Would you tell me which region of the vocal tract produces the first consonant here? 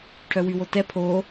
retroflex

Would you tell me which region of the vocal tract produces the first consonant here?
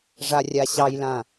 retroflex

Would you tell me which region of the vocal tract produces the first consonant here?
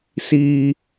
tongue tip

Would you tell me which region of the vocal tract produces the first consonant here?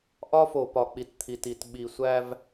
throat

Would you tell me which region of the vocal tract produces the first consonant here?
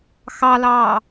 velum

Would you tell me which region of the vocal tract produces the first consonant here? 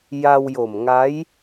palate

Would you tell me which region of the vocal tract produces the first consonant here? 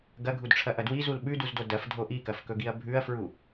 velum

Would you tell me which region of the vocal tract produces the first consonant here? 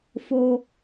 lips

